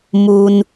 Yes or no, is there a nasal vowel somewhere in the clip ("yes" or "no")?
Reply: no